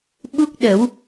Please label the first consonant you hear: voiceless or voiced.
voiced